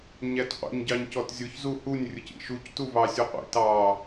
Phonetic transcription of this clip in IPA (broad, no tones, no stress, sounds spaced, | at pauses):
ɲ æ t qʷ ə̰ ɲ ɟ ɑ ɲ c ɔ t zʲ ʊ ç z u h u nʲ rʲ ʊ c ḭ ʃ u c t u v ɑ sʲ u qʷ ḭ t ɑ